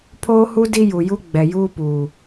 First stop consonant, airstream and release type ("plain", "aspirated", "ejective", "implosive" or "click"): aspirated